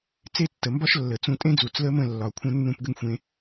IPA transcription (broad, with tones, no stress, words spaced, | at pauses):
t͡se˦˨tːə˨mbɒ˦ʃ lːə˨t͡sũ˧ tʼẽ˦d͡zu˨t͡s lə˦mə̃˦˨ lːɒ˨kʷʰə̃˦nːũ˦p ɡə˦ŋxʷẽ˧